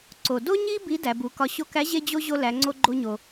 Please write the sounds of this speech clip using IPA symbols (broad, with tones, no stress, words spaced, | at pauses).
ǀo˩do˥ ɲi˥ bi˧˥ dæ˩˧bu˩˧kɒ˧ ɕo˧kæ˧˥ ʑe˥d͡ʑo˥ ʑo˧læ˩˧ŋ͡ǀo˧ ɡ͡ǃo˧ɲo˩